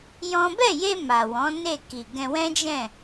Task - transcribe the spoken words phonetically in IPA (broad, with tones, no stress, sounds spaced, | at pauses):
j ɔ̃˦ b ɛ˦˨ j e˧ m a˨ w ɔ̃˨˦ n e˦˨ k i˨ ɡ ɛ̃˧ w ɛ̃˦ d͡ʒ ɛ̃˦˨